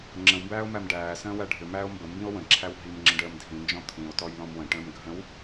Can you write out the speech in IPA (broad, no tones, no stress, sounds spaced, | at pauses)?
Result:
ŋ͡ǁ ə̃ w m b æː o̯ m æ m ɖ æː s ə̃ː w æ ɖʱ ʏ m æː o̯ m b ə m b ĩ o̯ w ə̃ ǁʰ æ w ɦ i m ŋ͡ǁ ə̃ ɖ əː m dʱ ĩ n d͡ʒ ɔ̃ t̪ʰ ĩ o̯ t ɔ j l ɔ̃ m w ə̃ ʈ ə̃ː m ɡʱ ə̃ w